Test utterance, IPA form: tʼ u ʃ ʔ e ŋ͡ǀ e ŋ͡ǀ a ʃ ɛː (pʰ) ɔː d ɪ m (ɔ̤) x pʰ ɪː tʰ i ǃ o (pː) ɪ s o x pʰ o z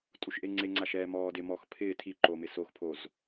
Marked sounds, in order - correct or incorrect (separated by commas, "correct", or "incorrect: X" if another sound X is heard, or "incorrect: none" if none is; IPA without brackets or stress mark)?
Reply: incorrect: m, incorrect: ɔ, incorrect: m